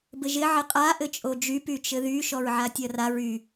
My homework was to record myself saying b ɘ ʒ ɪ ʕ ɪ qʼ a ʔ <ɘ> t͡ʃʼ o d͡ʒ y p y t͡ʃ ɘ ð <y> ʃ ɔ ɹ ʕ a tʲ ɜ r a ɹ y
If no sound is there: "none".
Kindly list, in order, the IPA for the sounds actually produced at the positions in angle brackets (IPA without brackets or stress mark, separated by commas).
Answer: ɘ, y